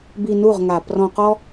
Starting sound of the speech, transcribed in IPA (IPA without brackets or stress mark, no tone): b